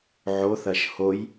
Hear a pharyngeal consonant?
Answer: yes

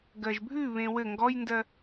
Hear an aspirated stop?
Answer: no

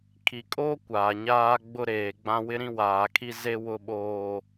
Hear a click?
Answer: no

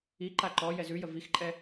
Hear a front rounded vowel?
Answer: no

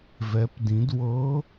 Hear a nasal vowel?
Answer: yes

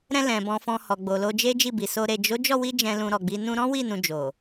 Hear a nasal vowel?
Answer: yes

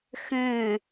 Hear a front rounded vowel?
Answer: yes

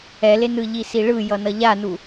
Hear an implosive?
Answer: no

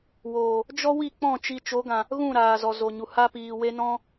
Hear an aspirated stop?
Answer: no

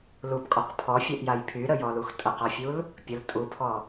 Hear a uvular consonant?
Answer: yes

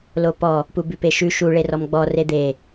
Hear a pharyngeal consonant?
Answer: no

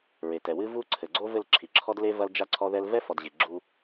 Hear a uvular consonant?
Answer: no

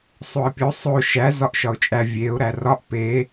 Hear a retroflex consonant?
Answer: no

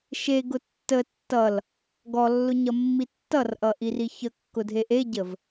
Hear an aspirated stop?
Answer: no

